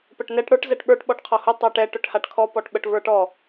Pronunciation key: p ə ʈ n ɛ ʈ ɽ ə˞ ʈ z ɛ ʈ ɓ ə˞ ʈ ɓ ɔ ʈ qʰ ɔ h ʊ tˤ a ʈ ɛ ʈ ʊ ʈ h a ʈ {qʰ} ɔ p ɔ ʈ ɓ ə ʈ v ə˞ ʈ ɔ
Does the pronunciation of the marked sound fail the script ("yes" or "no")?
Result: yes